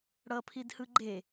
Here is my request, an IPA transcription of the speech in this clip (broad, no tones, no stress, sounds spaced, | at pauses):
ɽ ʌ pʰ i d h ɯ ɡ͡ǃ e